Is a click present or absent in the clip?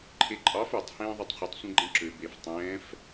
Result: present